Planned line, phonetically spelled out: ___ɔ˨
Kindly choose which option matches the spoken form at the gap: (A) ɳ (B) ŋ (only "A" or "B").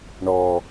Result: A